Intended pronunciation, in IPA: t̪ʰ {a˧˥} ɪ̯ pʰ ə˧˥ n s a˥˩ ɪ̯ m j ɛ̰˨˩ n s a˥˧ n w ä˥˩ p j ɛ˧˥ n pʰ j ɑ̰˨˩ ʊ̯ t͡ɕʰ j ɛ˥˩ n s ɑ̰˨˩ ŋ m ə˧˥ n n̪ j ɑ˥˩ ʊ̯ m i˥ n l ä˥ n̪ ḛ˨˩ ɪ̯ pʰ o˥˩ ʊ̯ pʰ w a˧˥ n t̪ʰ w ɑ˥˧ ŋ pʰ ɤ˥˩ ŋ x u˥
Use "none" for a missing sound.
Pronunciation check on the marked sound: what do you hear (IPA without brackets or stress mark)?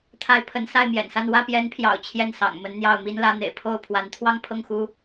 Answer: a˧˥